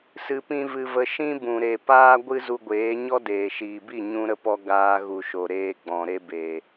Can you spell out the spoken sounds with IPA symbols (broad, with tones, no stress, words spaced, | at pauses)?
sɨ˧pĩ˦vɨ˧və˧ ʃĩ˦bũ˨ ɾe˨paː˦ ɡʷɨ˦ zu˧ɡʷeː˨˦ ɲɔ˦deː˨ʃiː˨bi˦˨ ɲũ˦ɾə˦pɔ˦ ɡaː˧ɣu˨ʃo˨ ɾeː˧ ɡ͡bɔ̃˨ ɾe˧be˨